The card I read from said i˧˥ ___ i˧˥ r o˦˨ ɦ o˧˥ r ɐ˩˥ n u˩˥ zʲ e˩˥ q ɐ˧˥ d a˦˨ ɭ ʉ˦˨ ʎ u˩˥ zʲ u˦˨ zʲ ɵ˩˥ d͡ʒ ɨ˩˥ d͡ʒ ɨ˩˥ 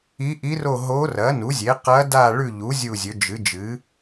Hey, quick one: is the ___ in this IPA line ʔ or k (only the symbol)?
ʔ